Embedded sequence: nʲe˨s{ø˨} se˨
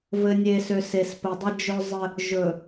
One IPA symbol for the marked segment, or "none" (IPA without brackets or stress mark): ø˨